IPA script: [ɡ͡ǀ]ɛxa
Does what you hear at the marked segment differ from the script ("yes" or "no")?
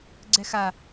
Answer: no